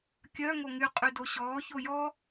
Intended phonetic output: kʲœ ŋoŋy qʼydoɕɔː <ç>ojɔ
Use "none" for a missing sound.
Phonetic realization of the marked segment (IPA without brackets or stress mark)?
ç